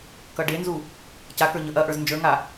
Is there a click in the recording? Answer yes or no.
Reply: no